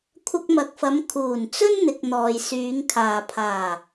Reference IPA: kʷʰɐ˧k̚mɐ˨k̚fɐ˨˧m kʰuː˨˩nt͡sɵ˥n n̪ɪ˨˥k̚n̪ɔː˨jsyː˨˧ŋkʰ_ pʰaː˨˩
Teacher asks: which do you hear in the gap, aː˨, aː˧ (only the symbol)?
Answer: aː˨